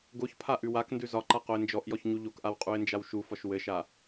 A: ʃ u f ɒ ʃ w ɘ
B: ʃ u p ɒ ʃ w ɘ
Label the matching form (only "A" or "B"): A